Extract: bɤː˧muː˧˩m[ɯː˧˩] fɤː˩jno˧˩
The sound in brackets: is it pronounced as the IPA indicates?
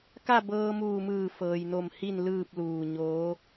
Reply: yes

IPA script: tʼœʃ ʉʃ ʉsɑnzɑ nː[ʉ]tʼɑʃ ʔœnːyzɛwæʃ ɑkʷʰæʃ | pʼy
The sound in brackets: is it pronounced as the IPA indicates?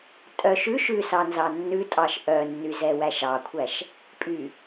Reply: yes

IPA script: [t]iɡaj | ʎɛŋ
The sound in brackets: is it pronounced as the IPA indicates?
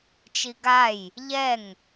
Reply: no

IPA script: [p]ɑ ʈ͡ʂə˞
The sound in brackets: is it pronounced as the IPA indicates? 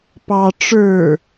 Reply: yes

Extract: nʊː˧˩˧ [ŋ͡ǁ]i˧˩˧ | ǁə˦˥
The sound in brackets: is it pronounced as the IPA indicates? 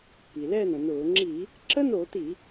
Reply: yes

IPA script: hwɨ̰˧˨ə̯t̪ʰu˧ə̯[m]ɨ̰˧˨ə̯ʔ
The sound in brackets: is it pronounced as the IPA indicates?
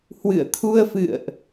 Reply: no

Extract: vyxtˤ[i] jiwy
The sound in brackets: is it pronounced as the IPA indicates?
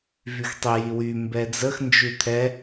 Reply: yes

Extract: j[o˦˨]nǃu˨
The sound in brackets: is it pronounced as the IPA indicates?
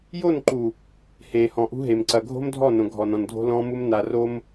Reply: yes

